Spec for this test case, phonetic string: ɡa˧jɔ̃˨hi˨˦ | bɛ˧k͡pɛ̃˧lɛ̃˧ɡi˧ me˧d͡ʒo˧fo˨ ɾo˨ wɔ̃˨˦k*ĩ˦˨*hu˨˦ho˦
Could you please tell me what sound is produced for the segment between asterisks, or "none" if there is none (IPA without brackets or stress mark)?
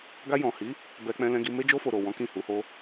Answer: ĩ˦˨